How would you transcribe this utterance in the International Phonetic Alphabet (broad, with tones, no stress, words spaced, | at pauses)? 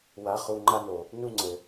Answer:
wa˨˦ χu˧ŋ͡ǃa˦no˨ | nu˦ŋ͡ǀɘ˨